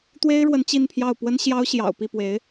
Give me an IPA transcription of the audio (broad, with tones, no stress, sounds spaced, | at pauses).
t̪ w e˥ ɪ̯ ɻ w ə˧˥ n t͡ɕ i˥˧ n pʰ j ɑ˥˩ ʊ̯ p w ə˥ n ɕ j ɑ˥ ʊ̯ ɕ j ɑ̰˨˩ ʊ̯ p i˥˩ p w e˧˥ ɪ̯